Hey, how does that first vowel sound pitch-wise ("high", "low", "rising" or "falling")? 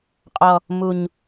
low